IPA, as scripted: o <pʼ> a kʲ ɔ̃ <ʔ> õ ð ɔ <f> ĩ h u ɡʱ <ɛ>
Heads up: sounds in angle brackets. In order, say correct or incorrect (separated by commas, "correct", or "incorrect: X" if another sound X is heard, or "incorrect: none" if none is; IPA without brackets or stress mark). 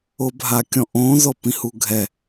incorrect: bʱ, correct, incorrect: p, correct